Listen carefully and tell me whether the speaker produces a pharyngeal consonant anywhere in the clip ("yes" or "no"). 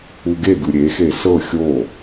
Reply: no